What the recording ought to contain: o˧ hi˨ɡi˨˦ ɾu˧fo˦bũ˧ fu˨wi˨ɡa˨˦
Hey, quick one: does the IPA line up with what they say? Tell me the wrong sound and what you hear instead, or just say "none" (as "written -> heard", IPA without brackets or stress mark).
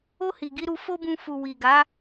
none